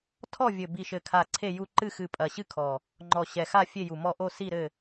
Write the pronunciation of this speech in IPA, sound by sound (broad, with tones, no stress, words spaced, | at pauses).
tʰɔ˦˨vʲɘ˨˩ bi˨˩ʃɘ˨˩kʰa˨˩ ǀʰe˦˨ju˦˨ ǃɨ˦˨ xɨ˨˩ pʼɐ˨˩ɕɨ˦˨kʰɔ˨˩ | ŋ͡ǃɔ˨˩ɕɛ˨˩xa˦˨ fʲe˦˨ju˨˩mɔ˦˨ ʔo˦˨si˦˨ɾɘ˦˨